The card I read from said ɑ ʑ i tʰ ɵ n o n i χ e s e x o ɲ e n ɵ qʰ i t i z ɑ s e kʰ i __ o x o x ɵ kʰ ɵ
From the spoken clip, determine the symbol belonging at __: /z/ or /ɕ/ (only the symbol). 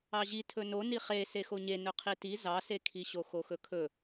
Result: ɕ